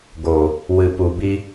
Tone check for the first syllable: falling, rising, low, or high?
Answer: low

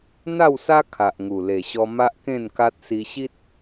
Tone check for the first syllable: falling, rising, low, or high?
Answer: falling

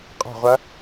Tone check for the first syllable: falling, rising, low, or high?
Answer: falling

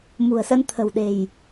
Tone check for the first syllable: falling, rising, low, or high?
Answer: low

